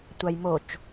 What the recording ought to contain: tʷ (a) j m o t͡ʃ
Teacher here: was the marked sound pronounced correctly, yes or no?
yes